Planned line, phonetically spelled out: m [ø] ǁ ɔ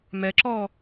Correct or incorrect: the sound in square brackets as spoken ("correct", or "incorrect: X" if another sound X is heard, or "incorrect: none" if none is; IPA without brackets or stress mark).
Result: incorrect: ɛ